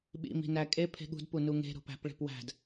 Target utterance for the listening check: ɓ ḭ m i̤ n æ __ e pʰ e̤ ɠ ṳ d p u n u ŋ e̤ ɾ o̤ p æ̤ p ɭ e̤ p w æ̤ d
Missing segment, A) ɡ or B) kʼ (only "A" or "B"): B